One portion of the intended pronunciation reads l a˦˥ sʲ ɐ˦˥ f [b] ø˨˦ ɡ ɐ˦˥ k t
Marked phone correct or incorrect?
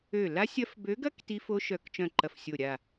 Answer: correct